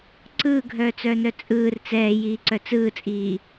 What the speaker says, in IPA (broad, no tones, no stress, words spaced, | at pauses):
ǀɯːɡʱœːt͡sœːnœ t͡sʼɯːr t͡sɛːjiːǀœ t͡sɯːt͡sʼiː